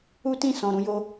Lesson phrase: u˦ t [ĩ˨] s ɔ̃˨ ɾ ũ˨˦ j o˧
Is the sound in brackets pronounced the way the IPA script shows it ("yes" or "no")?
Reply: no